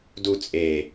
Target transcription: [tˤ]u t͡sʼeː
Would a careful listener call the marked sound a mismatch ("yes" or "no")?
yes